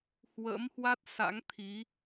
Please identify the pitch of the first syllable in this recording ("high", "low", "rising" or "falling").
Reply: rising